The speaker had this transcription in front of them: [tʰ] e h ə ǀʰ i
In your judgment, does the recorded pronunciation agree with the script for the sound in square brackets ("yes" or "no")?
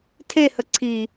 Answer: yes